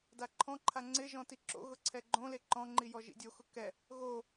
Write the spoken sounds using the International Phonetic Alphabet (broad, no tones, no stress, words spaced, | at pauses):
daǃʰɔ̃ǃʰa ŋ͡ǀɪʒɔ̃ tiǁo̰ɣʊ ǀʰɛɡ͡ǃõle ǃɔ̃ŋ͡ǃi jɔʒḭdʲoxʊ kɛ | ɣo